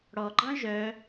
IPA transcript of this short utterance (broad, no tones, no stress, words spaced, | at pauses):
ɽɔɡ͡ǃɑ̃ ʒœ